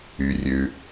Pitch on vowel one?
low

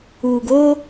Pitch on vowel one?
low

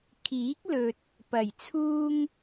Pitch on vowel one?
rising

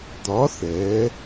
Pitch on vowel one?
rising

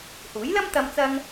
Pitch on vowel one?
rising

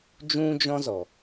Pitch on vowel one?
high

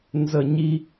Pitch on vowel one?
falling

